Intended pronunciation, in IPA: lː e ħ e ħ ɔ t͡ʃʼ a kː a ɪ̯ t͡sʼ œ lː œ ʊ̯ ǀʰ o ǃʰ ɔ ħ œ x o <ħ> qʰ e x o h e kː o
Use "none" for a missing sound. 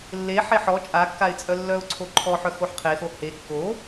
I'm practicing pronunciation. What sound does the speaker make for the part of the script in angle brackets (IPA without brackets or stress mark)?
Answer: ħ